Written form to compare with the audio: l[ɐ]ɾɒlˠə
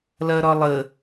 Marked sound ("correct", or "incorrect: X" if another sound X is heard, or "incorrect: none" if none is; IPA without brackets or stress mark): correct